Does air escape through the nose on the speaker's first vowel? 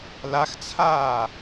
no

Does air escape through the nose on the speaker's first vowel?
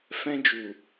yes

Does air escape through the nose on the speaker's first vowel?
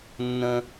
yes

